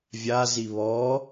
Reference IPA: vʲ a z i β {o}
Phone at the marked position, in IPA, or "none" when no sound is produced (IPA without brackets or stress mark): ɔ